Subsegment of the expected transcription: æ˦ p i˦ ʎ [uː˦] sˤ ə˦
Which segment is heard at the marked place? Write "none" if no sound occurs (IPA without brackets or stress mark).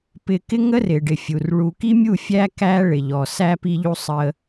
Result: u˦